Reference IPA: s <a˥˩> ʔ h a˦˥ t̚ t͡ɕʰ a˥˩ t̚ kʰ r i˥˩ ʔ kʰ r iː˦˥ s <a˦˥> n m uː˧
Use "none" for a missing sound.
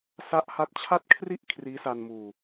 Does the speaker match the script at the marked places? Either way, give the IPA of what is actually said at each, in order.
a˦˥, a˧

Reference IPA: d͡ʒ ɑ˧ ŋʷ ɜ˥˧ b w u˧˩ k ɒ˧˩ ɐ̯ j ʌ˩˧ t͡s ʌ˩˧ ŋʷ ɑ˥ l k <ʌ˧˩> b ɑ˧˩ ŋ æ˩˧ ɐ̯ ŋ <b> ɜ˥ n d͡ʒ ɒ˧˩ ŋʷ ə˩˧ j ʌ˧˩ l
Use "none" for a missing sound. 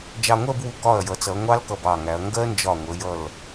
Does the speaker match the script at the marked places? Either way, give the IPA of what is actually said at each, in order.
ʌ˧˩, ɡ

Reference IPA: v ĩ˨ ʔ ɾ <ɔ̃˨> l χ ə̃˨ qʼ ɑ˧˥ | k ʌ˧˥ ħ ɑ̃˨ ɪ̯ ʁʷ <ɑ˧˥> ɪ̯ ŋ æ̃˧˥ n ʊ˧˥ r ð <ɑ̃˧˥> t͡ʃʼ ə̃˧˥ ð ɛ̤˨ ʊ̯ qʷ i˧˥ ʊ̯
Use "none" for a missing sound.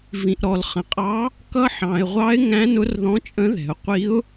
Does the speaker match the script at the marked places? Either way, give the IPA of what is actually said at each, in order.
ɔ˨, ɑ˧˥, ɔ̃˧˥

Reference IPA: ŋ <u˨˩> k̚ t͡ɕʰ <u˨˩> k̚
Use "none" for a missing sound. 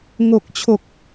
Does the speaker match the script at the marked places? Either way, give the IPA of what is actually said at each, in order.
o˨˩, o˨˩

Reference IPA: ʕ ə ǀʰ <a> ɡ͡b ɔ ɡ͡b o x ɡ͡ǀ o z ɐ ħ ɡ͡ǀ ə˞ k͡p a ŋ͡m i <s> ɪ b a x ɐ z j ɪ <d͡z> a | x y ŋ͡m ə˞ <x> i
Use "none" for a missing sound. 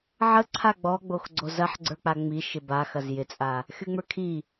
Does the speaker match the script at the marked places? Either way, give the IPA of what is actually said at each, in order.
a, ʃ, t͡sʼ, kʰ

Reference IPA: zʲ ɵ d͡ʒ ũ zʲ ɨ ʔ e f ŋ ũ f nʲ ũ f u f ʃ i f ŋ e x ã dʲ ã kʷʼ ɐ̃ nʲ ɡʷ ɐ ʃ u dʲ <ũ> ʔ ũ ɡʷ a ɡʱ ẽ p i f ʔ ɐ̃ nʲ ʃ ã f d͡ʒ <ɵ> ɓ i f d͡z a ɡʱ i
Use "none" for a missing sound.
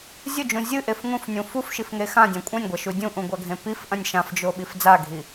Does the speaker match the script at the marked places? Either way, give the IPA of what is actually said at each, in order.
ũ, o

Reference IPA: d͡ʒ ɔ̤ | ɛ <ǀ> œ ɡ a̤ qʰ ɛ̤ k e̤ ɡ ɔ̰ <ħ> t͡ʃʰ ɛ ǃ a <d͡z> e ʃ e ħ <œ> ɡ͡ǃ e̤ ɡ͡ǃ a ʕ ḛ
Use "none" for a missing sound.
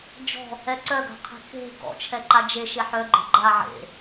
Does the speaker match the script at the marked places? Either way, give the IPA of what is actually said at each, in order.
ǀ, none, d͡ʒ, œ

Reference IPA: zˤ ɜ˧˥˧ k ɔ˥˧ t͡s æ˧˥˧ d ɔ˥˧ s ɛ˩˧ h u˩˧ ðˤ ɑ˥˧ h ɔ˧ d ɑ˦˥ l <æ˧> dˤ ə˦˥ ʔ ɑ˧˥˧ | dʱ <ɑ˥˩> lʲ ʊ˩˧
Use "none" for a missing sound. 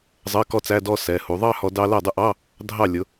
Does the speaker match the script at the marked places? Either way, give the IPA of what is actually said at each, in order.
æ˥˩, ɑ˥˩

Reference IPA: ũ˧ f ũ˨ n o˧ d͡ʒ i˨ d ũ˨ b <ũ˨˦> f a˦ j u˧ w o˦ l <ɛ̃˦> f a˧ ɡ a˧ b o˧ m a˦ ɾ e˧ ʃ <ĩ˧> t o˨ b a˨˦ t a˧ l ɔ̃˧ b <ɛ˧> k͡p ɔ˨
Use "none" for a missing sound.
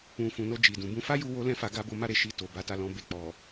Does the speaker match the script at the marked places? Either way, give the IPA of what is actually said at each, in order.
ũ˧, ɛ̃˦, i˧, e˧

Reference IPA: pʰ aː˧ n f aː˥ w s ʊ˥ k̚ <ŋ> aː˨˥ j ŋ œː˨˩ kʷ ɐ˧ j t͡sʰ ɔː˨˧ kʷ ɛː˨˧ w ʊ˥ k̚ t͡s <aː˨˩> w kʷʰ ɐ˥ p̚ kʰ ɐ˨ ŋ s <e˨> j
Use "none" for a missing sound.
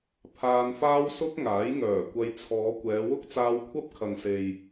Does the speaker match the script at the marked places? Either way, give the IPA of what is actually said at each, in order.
ŋ, aː˧, e˨

